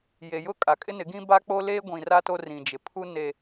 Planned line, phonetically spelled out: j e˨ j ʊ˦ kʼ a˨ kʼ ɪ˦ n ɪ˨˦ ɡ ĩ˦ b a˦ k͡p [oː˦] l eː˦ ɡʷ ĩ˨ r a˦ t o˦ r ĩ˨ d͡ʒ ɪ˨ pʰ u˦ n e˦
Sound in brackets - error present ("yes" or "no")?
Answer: yes